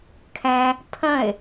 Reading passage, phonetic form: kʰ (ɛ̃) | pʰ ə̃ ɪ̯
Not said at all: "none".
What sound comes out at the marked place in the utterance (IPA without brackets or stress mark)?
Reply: ɛ̃